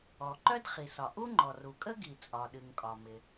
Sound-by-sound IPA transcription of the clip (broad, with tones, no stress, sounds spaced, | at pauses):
ɔ˩ ǃ œ˥ d χ i˩ s ɒ˩ ʔ u˥ ŋ͡ǃ ɔ˩ r u˩ kʼ ə˥ ɡ i˩ t͡sʼ ɒ˩ ɗ ɨ˩ ŋ kʼ ɒ˩ m ɪ˩